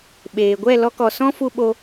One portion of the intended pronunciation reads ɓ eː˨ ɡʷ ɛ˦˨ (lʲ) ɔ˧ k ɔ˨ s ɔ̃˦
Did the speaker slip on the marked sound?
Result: yes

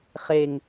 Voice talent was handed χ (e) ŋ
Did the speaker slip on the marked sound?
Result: no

